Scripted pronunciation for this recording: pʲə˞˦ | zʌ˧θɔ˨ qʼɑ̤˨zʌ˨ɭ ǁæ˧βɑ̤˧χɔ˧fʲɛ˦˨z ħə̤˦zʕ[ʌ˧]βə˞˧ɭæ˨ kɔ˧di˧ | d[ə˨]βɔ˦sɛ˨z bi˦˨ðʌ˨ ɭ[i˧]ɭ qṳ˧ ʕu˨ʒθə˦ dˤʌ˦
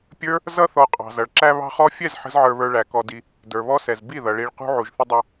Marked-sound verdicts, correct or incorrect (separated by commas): incorrect, incorrect, correct